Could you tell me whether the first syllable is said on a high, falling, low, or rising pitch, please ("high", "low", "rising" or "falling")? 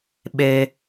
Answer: high